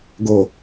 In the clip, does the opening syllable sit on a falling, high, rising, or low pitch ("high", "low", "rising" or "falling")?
low